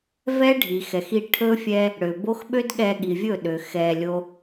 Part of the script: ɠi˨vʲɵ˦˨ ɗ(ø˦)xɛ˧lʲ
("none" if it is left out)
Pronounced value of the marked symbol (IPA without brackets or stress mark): ø˨